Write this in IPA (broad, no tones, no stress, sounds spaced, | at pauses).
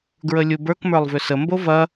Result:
ɡ ɹ ə lʲ u b ə˞ k m ə˞ lˠ v ʏ s ə m b o v ɐ